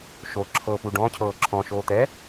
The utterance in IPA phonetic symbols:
ʃo ǁʰɤpu ɖɔ̃cʰɤː ǁʰɔ̃ʃoː t̪ɛ

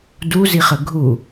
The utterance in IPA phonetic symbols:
duzi χəɡʱu

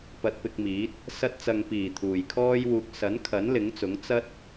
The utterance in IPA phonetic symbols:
pɐ˧t̚pɪ˧k̚miː˨˥t̚ | sɐ˧t̚t͡sɐ˨ŋpiː˨˩ t̪ʰuː˨˩jkʰɔː˥jwuː˧k̚ sɐ˨˥nkʰɐ˨˥n lɪ˨˥ŋt͡sʊ˨˥ŋ t͡sɐ˥t̚

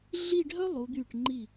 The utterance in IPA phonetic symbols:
ɮi˥˧ɖʱœ˥ lˠu˩˧d̪y˧˩ʈŋ͡ǃi˧˩

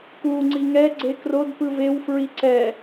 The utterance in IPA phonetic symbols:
ku ŋ͡ǀiŋɛ ɡ͡ǀekrod pɯvew fɹiǀɛ

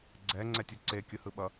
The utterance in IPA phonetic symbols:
ɡ͡ǀɛ ŋ͡ǀɛtʲuǀe kʲɯhɯɓʌ

